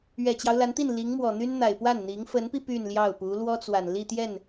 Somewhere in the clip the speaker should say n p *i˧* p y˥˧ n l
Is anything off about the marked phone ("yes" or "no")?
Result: no